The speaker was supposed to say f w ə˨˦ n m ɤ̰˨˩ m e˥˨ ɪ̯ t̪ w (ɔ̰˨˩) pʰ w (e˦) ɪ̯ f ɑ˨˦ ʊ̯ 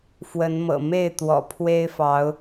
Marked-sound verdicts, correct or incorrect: correct, correct

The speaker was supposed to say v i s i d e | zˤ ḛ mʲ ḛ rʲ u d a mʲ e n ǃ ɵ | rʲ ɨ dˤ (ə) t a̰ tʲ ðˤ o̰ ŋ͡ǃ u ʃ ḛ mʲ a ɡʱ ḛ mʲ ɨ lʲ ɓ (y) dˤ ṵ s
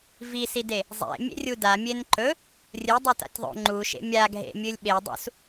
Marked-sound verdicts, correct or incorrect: incorrect: ʉ, incorrect: e

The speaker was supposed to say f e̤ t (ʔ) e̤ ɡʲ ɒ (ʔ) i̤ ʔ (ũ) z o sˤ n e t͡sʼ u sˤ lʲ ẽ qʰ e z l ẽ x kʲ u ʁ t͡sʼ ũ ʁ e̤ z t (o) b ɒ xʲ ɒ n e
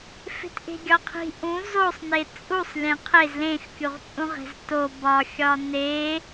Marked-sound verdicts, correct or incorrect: correct, incorrect: qʰ, correct, correct

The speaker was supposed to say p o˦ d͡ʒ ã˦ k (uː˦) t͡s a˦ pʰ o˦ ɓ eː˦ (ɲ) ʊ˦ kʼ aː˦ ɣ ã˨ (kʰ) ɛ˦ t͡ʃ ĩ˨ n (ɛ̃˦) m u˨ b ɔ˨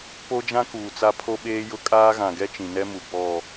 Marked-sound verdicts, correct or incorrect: incorrect: uː˨, incorrect: j, incorrect: ɡ, incorrect: ɛ˦

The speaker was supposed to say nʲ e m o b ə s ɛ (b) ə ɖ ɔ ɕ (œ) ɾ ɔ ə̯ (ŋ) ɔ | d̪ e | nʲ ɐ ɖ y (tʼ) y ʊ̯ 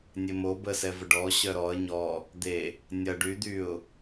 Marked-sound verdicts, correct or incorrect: incorrect: v, correct, incorrect: ɲ, incorrect: d̪

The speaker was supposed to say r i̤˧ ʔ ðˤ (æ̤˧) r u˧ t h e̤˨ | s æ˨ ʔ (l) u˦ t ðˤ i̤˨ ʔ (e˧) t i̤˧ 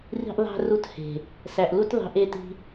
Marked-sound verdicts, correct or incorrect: correct, correct, correct

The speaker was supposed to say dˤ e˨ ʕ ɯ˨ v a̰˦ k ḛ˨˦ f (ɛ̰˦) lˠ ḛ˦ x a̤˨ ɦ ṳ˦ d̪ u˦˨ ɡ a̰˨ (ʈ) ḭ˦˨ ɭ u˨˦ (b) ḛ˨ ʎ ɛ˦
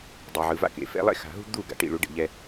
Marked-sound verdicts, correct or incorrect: correct, correct, incorrect: ɖ

